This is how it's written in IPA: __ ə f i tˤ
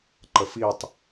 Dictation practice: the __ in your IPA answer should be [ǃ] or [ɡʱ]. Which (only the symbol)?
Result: ǃ